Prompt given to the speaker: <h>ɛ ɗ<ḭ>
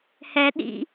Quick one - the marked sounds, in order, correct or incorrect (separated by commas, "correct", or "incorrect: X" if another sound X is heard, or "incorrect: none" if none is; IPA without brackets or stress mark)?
correct, correct